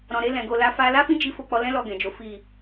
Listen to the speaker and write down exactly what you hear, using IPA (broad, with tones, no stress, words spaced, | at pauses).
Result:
ɾɔ̃˨ɾe˧lɛ̃˨ ɡo˨la˧fa˧ la˦fĩ˦ d͡ʒi˦ fo˧k͡pɔ˧lɛ̃˦ lɔ˦˨ɡɛ̃˨d͡ʒo˨˦ fi˦˨